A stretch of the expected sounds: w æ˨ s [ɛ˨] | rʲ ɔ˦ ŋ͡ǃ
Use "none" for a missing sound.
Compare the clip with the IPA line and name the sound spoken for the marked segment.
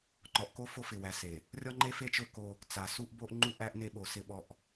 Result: e˨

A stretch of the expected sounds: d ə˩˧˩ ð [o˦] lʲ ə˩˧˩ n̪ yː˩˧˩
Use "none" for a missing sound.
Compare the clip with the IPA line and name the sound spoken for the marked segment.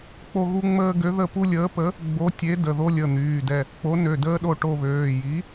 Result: o˦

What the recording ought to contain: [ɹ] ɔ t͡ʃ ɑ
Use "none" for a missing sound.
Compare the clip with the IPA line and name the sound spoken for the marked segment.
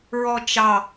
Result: ɹ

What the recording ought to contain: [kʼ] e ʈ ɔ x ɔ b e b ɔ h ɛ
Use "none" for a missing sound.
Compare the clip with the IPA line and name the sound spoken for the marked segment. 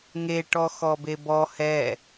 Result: ŋ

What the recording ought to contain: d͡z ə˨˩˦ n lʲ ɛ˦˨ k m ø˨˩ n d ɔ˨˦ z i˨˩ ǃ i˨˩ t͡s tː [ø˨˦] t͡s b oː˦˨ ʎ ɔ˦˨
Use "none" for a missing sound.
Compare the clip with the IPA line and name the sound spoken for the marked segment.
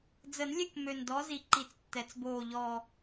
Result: ɛ˨˦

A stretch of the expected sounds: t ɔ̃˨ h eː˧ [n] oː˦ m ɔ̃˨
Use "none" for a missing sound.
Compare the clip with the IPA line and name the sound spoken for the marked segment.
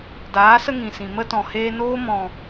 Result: n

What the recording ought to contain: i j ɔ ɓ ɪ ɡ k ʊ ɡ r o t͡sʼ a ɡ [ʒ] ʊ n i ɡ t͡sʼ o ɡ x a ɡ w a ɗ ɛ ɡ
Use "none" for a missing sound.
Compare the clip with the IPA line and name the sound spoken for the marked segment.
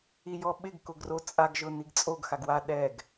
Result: ʒ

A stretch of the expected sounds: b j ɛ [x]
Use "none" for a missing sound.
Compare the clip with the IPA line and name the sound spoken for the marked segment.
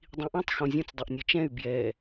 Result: none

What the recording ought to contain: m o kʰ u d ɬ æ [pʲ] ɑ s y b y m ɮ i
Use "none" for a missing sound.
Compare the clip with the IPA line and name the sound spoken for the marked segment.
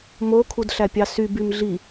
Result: pʲ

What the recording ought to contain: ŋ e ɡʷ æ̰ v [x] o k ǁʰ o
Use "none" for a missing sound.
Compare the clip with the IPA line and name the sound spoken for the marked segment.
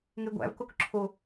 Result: k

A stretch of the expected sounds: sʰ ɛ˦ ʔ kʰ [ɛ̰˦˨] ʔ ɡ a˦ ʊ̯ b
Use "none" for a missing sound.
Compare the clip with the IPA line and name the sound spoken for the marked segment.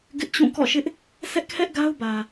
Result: ɛ˦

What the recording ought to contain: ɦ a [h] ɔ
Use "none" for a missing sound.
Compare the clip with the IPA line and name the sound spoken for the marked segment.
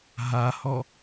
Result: h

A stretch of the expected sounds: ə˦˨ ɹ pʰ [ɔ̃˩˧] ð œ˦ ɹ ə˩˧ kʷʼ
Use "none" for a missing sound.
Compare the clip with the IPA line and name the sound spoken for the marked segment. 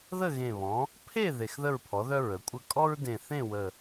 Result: ɔ˩˧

